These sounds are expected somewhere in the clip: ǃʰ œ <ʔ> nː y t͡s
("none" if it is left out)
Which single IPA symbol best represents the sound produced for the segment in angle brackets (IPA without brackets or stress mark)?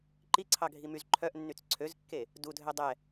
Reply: ʔ